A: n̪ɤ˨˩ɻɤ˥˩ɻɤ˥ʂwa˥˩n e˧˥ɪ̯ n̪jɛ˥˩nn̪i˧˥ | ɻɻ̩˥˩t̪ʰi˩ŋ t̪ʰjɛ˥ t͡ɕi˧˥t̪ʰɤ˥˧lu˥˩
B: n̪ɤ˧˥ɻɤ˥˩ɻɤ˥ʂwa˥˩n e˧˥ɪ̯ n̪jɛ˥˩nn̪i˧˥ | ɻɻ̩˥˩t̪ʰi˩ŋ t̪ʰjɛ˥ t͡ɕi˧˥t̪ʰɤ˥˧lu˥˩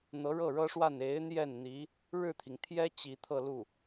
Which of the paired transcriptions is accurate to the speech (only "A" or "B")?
B